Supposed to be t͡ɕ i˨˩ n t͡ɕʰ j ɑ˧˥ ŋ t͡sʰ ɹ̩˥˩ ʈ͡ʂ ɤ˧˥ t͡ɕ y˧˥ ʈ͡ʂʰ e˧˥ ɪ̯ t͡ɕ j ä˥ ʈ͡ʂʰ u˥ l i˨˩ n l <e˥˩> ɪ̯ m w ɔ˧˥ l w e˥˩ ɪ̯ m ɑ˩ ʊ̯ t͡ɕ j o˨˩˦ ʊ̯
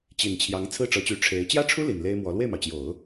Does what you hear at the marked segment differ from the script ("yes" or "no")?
yes